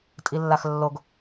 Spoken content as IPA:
tʼ i lː a x lː o ɡ

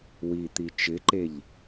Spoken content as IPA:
w i t̪ i t͡ʃ ɪ ǃ e ʎ

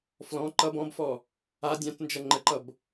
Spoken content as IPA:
f l ɔ̃ ǃ ʌ b ɔ̃ b f ɔ | a dʲ ã t n d͡ʒ ʌ ŋ͡ǃ ə ǃ ʌ b

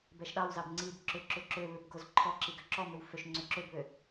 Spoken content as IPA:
b ɛ ʃ ɗ ɑ w z ɑ b ŋ͡ǀ i b ǁ ʏ ǁ ʏ ǁ ø β ʏ b ɡ o z ǃʰ ɔ ǁ i ɡ ø ǁ ɔ m ʏ w f ø ʃ ŋ͡ǀ ʏ ǁ ø b β ø

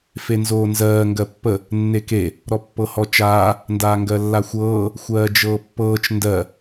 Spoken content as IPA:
f e n z oː n z ɜː ŋ ɡ ɜ pː ə | nː e k e | ɾ ɔ pː ɤ h ɔ t͡ʃ aː | n d aː ŋ ɡ ɜ lː a xʷ ɤː | xʷ ɜː d͡ʒ ɤː pː ɤː t͡ʃ n d ɜ

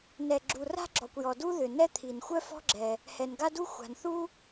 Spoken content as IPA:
n ɛ˩ ɡ͡ǁ u˩ r a̤˥ ɡ͡ǁ ɔ˩ kʷ j ɔ˩ d u˥ ð ʏ˩ n ɛ˥ t̪ʰ i˩ n xʷ œ˥ f ɔ̤˥ ɡ͡ǁ ɛ˩ | h ɛ˩ n ɡ a˥ d u˥ xʷ a̤˩ n θ u˥

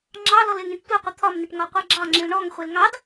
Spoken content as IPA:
ŋ͡ǁ ɑ l ɔ l ɪ ŋ ĩ ʈ tʷ ɪ qʷ ɪ t̪ʰ ɒ m n ɪ ʈ ŋ ɒ qʷ e ɡ͡ǁ ɑ ŋ͡ǁ ĩ l ɳ ɔ ŋ χʷ e l ŋ ɑ d

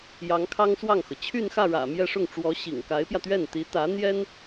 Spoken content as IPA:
j ɑ˧˥ ŋ kʰ ɑ˥ ŋ s w ɑ˥˩ ŋ x ɤ˩ t͡ɕʰ y˥˧ n x ä˥˩ ɻ ä̰˨˩ m j ɛ˥˧ ʂ ʊ˥˩ ŋ ʈ͡ʂ w ɔ˧˥ ɕ ḭ˨˩ ŋ k a˧˥ ɪ̯ p j ä˧ t̪ ɥ ɛ˥˩ n t̪ i˧˥ t̪ ä˧˥ n̪ j ɛ˥ n

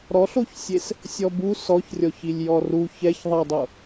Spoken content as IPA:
ɾ ɔ ɬ o ç sʲ e s | sʲ ɔ b u s ɔ ç rʲ ɔ ç i lʲ j ɔ r u ç ɛ ç ðˤ ɛ dˤ o

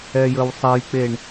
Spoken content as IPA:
ɛ j ə w sˤ ɛ j k͡p e ɳ

